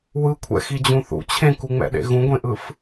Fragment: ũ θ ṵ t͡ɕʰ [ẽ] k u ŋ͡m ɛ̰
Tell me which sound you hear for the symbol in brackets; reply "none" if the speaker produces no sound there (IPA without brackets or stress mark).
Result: ẽ